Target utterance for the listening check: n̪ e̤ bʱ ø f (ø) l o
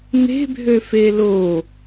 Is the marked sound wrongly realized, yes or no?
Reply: yes